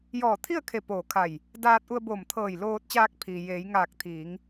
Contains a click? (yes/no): no